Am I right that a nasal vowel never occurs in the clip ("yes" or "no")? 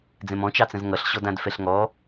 no